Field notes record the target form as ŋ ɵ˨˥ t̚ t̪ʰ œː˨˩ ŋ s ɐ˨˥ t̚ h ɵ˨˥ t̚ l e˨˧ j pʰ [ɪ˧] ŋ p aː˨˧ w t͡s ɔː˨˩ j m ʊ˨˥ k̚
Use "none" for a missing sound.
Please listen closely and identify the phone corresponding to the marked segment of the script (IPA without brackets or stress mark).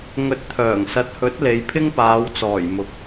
ɪ˥